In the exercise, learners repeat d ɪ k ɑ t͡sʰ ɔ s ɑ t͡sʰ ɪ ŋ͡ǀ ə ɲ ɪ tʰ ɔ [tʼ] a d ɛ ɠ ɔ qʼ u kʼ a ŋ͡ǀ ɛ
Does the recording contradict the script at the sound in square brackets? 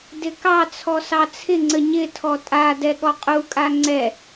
no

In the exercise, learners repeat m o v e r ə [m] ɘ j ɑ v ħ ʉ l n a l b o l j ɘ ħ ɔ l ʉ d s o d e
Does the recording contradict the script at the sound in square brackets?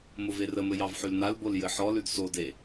no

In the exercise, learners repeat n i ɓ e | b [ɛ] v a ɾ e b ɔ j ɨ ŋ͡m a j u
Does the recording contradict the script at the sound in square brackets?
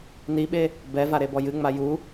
no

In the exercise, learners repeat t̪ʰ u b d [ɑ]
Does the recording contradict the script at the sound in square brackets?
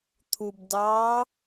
no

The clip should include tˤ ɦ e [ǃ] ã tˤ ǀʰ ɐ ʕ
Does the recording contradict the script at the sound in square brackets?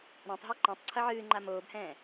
no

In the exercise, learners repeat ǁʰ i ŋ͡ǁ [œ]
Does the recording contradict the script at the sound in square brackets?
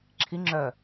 no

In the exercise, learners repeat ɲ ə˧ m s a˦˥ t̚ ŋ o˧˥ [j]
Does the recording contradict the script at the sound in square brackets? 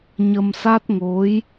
no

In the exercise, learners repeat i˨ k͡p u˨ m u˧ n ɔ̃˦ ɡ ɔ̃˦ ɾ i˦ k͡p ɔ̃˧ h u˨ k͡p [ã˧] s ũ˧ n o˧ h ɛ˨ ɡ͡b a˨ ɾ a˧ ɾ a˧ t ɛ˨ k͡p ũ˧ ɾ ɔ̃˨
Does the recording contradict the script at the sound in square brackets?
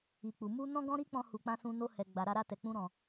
no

